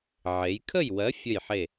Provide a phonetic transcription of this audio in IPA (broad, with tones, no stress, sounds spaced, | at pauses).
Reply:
ʕ e˩˧ j kʰ ə˥˨ j w ɜ˨˥ fʲ ə˥˨ j ħ e˥˨